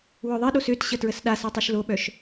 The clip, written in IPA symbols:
wœðˤiɗos øtɕə tɹəsɗasa tˤøʃloɓœʃ

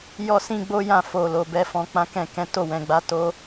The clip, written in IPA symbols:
jɔ˦sĩ˦ɡ͡bo˦ jã˦˨ fo˨lo˨ bɛ˧fɔ̃˧k͡pã˦ kɛ̃˦˨kɛ̃˨˦ to˦˨wɛ̃˨ɡ͡ba˨˦ to˧

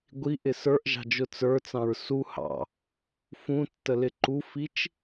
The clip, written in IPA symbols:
ɡʷiʔɪ sə˞ʔʒɑ̤d͡ʒʊ t͡sə˞t͡sɑ̃ɹ su hɑ̰ | fũtːəlɪ ǃufit͡ʃ

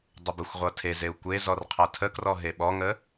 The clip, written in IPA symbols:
dˤəbəxʷʁʷʌ tʰezeu̯ kʷe zɔrqʰʌtʰəkrɔ ɦeɓɔŋə

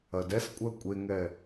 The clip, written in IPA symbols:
ɐdɛskʷʼɜ kʷʼeŋɛ

